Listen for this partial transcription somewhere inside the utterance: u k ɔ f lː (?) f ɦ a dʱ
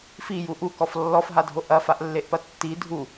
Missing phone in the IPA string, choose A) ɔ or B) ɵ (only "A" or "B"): A